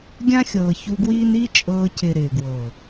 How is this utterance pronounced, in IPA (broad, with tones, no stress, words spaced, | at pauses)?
ɡʲã˦xʲɤː˨çu˧ɡwiː˦n i˦t͡ʃʼɤː˧cɪ˨ ɾɪː˨ɡwɤ˨